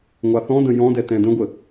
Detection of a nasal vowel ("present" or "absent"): present